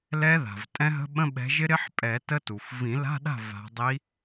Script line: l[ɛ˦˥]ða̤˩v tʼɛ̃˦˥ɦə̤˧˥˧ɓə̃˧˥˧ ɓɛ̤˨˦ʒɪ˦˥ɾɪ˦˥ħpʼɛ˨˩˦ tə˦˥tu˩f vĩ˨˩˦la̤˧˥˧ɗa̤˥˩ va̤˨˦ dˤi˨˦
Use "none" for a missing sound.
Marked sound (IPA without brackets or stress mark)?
ɛ˦˥